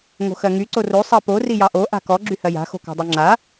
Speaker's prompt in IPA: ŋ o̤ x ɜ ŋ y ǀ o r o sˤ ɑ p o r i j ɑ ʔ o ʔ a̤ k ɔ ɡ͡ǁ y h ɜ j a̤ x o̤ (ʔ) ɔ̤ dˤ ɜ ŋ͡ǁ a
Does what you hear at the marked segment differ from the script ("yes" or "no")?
yes